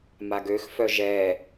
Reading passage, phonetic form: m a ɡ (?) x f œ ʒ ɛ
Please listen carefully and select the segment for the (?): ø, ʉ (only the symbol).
ø